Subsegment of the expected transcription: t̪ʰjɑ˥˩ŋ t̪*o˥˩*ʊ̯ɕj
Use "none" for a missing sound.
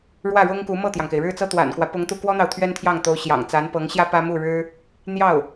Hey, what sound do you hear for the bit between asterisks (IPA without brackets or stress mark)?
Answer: o˧˥